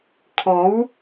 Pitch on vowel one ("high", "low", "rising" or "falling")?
rising